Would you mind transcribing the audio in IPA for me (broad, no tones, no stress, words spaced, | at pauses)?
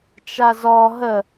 t͡ʃazɔ ɦə